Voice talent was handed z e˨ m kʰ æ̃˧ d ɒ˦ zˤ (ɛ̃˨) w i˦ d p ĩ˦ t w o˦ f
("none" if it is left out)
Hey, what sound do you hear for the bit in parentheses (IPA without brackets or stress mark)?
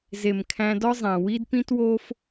æ̃˨